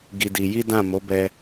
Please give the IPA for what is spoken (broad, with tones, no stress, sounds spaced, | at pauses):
ɡ i˧ d i˧ j i˦ d ã˦˨ m o˨˦ b ɛ˧